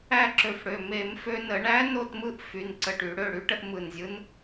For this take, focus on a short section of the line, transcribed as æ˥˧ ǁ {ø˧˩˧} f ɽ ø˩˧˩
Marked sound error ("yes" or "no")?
no